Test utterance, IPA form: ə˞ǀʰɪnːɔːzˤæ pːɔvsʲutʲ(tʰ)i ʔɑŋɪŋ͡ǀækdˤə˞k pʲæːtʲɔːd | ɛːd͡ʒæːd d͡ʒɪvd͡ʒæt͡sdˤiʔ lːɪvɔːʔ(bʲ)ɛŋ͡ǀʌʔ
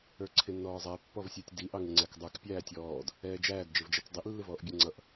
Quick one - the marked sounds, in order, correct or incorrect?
incorrect, correct

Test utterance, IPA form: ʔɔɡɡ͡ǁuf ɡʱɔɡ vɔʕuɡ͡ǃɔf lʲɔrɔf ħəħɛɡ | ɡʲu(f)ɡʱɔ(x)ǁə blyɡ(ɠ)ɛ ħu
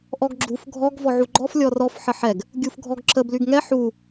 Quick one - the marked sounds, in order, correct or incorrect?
correct, incorrect, incorrect

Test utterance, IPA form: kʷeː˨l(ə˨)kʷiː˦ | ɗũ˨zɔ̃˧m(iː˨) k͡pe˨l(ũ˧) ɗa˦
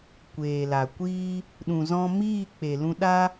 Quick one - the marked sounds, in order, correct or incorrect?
incorrect, incorrect, correct

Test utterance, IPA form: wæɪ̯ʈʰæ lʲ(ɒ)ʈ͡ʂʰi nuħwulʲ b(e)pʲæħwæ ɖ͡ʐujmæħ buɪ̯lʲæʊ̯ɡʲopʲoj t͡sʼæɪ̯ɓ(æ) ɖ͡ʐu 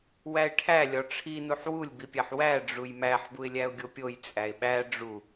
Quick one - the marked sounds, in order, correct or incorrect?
correct, incorrect, correct

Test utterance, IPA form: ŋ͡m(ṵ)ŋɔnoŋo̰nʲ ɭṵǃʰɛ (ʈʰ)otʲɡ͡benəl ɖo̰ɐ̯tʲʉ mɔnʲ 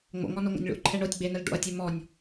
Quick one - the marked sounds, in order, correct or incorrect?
incorrect, incorrect

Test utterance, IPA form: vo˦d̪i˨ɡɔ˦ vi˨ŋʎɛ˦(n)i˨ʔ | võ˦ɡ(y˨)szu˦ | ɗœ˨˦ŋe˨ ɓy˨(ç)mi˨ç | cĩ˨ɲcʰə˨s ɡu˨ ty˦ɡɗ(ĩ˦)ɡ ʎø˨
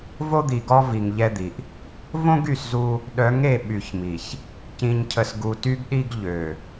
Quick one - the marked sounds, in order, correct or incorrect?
incorrect, correct, correct, incorrect

